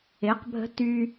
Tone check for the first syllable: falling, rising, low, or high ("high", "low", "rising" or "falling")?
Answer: rising